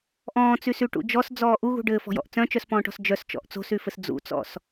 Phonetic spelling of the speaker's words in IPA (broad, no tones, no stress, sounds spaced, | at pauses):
ʔ ɔ̃ː t͡s y s y ʈ ṵ d͡ʒ ɔ s d͡z ɔː ʔ u ɣ ṳ ɖ ɘː f ɔ̤ j ɔ̰ ʔ t͡s œ̃ t͡ʃ œ s p ɔ̃ː ʈ ɔ̤ s d͡ʒ œ s t͡ʃ ɔ̰ ʔ t͡s o̤ s y f ɘ s d͡z ṵ t͡s ɔ̰ s